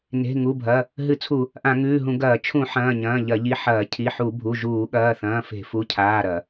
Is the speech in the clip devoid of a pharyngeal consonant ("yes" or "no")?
no